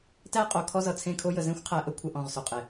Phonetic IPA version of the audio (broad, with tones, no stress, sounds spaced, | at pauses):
t æ˦ qʼ o˨ kʰ ɔ˦ z ʌ˨ t͡sʰ ẽ˦˨ kʰ o˦ j ə˨ z ẽ˦ xʷ qʰ æ˨ ʔ ə˦ kʷʰ ə˨ ʔ ɔ̃˦˨ ʁ s o˨ qʼ e˨